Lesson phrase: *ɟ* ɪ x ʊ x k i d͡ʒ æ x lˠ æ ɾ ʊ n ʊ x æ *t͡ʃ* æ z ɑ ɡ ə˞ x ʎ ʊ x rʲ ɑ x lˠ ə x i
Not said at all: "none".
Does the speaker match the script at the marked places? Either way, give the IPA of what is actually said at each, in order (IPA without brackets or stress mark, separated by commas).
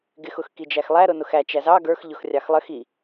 ɡ, t͡ʃ